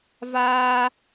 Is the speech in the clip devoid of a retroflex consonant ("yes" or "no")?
yes